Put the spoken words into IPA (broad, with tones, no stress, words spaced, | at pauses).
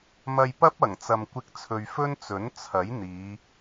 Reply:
mɐ˧jpɐ˥p̚ ɐ˨˩ŋt͡sɐ˨mkʷɪ˧k̚t͡sʰɵ˨ɥ fɵ˥nt͡sɵ˨˥n t͡sʰɐ˨˥j n̪iː˨˧